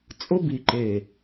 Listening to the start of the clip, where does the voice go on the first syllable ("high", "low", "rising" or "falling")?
high